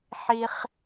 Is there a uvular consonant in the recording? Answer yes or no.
yes